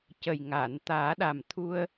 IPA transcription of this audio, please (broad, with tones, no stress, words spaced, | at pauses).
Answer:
cə˨˩jŋaː˨˩˨nt̪aː˨˩˦ ɗa˨˩mt̪ʰu˧ə̯